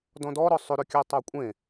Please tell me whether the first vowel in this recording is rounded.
yes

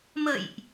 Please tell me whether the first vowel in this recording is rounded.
no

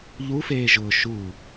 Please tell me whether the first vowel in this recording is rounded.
yes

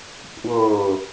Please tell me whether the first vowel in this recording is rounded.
no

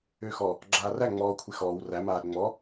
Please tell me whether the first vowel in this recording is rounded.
yes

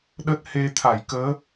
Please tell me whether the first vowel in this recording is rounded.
no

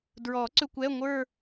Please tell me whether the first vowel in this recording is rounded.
yes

